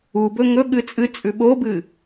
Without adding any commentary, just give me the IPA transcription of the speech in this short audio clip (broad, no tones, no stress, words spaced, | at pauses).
ubɵ ŋɵɠɨ t͡sʼɨt͡sʼʉ ɓobɨ